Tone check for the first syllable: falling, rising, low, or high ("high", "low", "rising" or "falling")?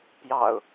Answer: low